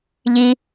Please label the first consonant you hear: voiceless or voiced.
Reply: voiced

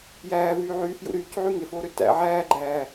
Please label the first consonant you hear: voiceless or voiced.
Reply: voiced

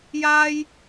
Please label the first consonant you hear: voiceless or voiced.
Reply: voiced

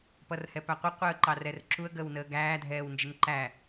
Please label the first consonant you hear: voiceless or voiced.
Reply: voiceless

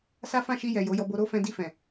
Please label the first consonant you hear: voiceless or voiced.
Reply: voiceless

